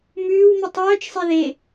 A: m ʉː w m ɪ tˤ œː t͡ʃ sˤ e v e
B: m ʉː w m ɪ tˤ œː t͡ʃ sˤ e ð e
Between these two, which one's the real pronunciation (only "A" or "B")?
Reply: B